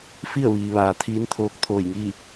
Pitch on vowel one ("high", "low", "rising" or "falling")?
falling